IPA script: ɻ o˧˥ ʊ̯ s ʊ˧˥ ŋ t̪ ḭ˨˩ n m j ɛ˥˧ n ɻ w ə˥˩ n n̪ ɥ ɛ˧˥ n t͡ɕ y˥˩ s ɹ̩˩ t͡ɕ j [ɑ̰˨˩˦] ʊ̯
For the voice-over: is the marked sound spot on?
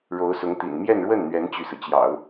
yes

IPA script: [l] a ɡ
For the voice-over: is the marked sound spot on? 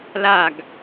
yes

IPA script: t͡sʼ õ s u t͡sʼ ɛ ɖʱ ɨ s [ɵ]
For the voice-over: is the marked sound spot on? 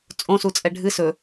yes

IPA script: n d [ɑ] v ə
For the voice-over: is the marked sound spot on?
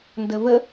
no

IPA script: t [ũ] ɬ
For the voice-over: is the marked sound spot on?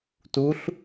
no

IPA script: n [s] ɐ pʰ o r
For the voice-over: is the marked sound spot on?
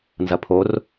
no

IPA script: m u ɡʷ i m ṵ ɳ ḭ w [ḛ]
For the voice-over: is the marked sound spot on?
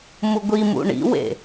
yes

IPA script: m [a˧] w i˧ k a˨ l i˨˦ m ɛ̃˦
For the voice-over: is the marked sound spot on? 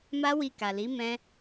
no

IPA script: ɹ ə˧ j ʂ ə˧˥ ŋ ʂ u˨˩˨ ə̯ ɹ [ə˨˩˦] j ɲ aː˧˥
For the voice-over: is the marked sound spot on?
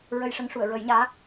yes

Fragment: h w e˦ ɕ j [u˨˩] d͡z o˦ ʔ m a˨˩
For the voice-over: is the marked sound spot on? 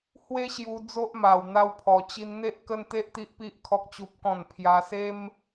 no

